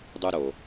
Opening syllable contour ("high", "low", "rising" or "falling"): high